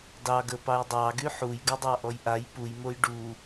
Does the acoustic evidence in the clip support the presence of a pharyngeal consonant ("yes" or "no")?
yes